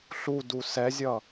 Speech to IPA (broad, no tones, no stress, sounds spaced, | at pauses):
ɬ u d u s ɛ zʲ ʌ